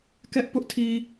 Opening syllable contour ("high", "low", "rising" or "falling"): high